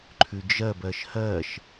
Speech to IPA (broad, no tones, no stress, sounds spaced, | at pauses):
ǃʰ ʉ d͡ʒ ɜ b ɜ ʃ h ɜ ʃ